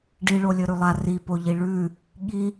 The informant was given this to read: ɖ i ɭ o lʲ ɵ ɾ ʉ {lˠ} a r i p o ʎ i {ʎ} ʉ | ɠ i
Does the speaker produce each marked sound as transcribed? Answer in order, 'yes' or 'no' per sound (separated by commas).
yes, no